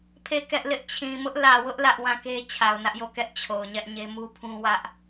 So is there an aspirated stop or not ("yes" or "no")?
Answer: yes